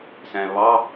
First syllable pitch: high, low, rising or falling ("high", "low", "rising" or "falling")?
low